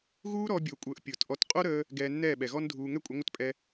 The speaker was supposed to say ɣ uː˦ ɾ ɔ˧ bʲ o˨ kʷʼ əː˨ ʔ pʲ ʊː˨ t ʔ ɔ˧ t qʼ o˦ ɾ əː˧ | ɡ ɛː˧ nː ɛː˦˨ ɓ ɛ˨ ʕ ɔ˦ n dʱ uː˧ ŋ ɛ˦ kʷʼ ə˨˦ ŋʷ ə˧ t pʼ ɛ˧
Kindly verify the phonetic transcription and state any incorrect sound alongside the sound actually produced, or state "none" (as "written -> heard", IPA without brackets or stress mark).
ʕ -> ɣ